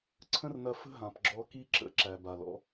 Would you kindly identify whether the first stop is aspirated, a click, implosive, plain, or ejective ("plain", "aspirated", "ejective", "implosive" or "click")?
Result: click